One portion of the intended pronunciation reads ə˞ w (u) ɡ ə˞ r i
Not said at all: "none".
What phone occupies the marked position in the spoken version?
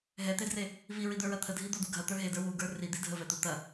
u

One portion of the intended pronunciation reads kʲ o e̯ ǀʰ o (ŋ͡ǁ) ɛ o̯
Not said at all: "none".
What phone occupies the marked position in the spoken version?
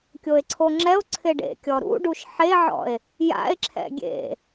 ŋ͡ǁ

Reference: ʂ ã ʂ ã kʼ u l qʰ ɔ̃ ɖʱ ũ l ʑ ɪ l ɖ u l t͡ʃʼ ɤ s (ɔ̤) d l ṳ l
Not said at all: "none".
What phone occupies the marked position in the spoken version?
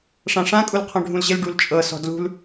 ɔ̤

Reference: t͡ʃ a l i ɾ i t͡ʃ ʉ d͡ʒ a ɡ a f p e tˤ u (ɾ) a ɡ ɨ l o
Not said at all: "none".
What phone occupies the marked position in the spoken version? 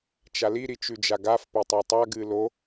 tˤ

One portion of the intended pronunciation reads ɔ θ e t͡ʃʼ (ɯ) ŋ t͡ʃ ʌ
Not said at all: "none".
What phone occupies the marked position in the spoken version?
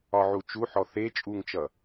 u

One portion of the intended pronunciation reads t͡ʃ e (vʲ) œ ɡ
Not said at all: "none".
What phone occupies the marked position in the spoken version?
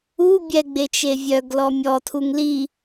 vʲ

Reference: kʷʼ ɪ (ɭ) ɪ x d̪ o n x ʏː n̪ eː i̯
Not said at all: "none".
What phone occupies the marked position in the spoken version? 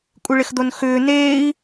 ɭ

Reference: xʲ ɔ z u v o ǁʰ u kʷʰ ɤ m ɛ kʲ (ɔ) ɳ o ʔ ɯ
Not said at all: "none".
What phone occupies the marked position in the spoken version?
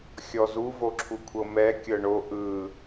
ɤ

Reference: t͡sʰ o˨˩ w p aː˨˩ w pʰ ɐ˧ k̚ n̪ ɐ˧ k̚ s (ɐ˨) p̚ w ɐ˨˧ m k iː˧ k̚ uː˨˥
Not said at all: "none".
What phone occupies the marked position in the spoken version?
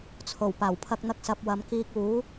ɐ˨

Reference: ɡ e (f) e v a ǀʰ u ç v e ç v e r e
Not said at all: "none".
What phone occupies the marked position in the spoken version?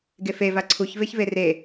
f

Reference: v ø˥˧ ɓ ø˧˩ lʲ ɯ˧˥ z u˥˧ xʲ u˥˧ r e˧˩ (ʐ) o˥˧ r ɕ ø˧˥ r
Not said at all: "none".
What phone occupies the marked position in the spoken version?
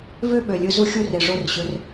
ʐ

